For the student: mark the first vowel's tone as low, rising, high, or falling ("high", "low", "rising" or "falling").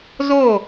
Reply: falling